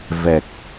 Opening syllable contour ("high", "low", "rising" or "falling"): low